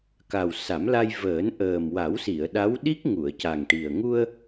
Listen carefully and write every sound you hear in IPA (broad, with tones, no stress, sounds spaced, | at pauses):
k a˨˩ w s a˨˩˦ m l a˧ j v əː˨˩˦ n ʔ əː˨˩ m w a˨˩˦ w s i˨˩˨ ə̯ ɗ a˧˥ w ɗ i˦˥ k̚ ŋ u˨˩˨ ə̯ c a˨˩ ŋ ʈ i˨˩ ə̯ ŋ u˧ ə̯